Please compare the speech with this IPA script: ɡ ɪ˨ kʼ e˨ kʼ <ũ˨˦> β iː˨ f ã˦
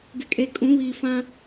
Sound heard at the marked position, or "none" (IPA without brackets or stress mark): ũ˨˦